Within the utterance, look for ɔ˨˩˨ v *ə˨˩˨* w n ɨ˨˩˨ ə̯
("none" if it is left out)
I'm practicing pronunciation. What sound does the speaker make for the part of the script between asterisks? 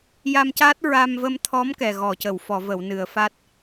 ə˨˩˨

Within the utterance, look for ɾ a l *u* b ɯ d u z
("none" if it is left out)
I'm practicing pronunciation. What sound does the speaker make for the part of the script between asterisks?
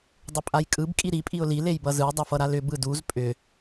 ʏ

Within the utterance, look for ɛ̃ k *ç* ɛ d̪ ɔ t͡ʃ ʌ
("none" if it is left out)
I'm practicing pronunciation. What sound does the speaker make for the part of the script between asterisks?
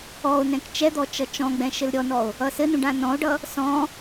t͡ʃ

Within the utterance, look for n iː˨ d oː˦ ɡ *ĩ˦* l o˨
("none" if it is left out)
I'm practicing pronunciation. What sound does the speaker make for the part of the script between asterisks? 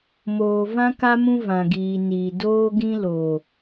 ĩ˦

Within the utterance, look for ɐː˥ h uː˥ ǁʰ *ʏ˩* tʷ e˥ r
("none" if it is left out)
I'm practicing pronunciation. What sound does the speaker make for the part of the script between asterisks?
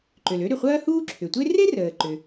ʏ˩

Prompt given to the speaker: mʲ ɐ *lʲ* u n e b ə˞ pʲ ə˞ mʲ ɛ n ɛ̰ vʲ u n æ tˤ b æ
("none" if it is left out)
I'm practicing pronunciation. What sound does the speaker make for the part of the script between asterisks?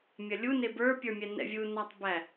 lʲ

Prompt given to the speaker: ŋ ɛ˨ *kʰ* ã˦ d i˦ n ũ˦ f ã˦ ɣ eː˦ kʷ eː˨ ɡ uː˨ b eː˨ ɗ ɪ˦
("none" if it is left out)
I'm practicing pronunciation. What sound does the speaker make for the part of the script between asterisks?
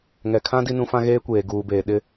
kʰ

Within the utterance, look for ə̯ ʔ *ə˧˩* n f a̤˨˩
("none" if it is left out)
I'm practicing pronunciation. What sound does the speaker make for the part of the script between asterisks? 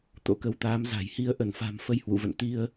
ə˧˩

